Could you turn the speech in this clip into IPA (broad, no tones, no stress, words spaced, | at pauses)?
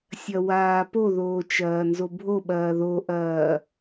sʲɐwaːpoðoː t͡ʃɐːnzobʱoɓɐː ðoʔɐː